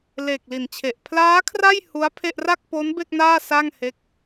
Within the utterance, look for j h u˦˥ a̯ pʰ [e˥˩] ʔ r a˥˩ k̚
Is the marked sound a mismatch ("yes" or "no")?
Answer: no